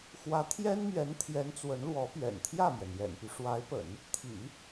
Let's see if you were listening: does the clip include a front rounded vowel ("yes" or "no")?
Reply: yes